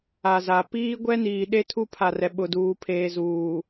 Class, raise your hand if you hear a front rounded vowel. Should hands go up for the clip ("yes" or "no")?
no